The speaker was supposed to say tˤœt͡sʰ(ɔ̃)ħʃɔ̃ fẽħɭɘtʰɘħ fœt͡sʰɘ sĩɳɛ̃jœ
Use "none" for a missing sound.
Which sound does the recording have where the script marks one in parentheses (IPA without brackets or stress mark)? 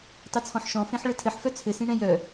ɔ̃